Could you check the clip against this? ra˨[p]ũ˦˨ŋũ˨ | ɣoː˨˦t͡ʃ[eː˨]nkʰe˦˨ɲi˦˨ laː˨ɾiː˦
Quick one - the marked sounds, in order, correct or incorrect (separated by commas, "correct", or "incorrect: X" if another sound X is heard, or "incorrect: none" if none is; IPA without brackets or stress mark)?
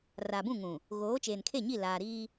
incorrect: b, correct